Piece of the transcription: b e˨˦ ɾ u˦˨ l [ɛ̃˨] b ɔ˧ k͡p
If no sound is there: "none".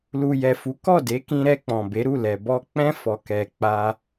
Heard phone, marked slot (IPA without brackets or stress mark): ɛ˨